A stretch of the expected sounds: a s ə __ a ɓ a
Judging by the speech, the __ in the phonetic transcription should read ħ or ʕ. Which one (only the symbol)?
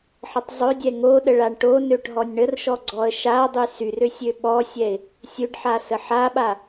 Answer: ħ